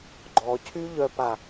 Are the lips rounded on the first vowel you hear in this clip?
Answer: yes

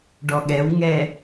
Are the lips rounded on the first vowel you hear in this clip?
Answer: yes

